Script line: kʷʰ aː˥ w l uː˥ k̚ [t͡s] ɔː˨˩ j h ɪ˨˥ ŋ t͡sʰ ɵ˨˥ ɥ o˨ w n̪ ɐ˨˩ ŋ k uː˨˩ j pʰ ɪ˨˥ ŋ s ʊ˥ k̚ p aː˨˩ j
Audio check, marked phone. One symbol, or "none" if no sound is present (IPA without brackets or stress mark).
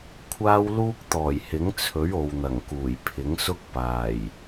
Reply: t̪